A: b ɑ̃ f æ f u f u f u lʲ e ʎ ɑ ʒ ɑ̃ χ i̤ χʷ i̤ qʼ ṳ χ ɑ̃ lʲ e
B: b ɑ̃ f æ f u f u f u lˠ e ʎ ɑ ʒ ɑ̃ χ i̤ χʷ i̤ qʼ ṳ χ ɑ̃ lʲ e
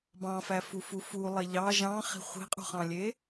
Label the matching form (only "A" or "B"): B